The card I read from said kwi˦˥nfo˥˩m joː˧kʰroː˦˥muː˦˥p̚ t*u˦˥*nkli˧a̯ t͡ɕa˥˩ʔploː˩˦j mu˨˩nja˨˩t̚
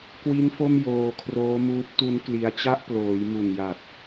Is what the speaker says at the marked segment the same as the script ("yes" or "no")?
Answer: yes